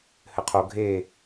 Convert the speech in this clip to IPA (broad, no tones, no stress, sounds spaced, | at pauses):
h ɘ qʰ o ɡʱ e